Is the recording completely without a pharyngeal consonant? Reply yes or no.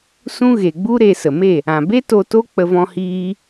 yes